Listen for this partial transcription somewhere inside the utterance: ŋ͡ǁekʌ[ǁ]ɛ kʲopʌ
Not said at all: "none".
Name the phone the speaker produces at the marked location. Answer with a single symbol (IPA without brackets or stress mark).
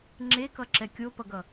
ǁ